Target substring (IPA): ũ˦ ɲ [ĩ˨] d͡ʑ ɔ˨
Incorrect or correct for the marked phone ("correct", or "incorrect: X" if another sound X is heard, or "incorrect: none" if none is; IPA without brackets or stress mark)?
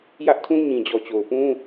correct